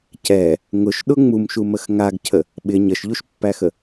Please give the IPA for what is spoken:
c ɛ | ŋ ʊ ʃ ɗ ʊ ŋ͡m u m ʃ u m ə x ŋ a ɡ cʰ ə | ɓ ɪ ɲ ə ʃ ʎ u ʃ pː æ x ə

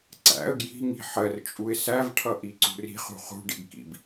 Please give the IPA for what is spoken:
ǀ æ̰ ə̯ ɡ j i̤ ŋ i̤ ħ ɜ r t͡ʃʼ u ɪ̯ s æ v ʈʰ ʌ ʔ i ǀ ṳ r i̤ χ ṳ χ ṳ ɖ ḭ ɡ k ḭ b

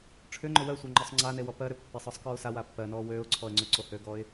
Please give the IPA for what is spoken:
ʈ͡ʂʰ ʏ ŋ͡ǃ ʏ w ɜ sʷ a ŋ͡ǃ ɔ sˤ ŋ͡ǀ a n e w ɔ p ɜ ɾ ʏ pː e sˤ ɔ sˤ k ɔ ʊ̯ s a w a pː ɜ n ɔː w øː ʊ̯ ǀʰ ɔ ə̯ ŋ͡ǀ ʏ ǀ o h øː ɡ ɔː ɪ̯

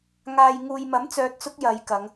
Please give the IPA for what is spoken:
ŋ aː˨ j ŋ uː˨ j m ɐ˨˥ m t͡s œː˧ t̚ t͡s ʊ˥ k̚ j ɐ˨˧ j k ɐ˨˧ ŋ

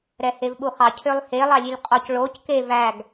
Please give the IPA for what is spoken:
ɾ ɛ h e v ɓ u χ ɑ cʰ ø lˠ h e lˠ ɑ lʲ ʉ lʲ qʼ ɔ c ɭ o c k e v æ ɡ

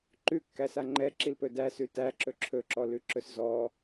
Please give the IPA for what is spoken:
ǃ ʉ kː æ s a ŋ͡ǃ ɛ ǁ i l p ɵ d æ s ʉ t æ ǁ ɵ ǁʰ ɵ ǁ ɔ l ʉ ǁ ɵ s z ɔ

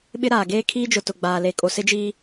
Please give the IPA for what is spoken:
ɓ ɪ˦ ɾ aː˨ ɡ eː˦ kʰ iː˦ d͡ʒ ʊ˨ t ʊ˨ ɡ͡b aː˨ l e˨ kʼ o˨ s ɪ˦ d͡ʒ iː˦

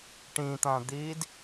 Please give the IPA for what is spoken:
ʈ ĩ t̪ ã d̪ iː d

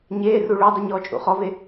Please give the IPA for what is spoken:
ɲ eː r u ɭ o dˤ ɨ ɲ ɔː t͡ʃʼ ṵ χ ɔ v e

